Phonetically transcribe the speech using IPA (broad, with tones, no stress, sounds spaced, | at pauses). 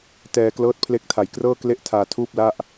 t ɛː˧ k l ɤː˦˥ t̚ pʰ l e˦˥ k̚ tʰ a˨˩ j k r ɤː˥˩ k l e˥˩ ʔ tʰ aː˧ tʰ uː˥˩ p̚ l a˥˩ ʔ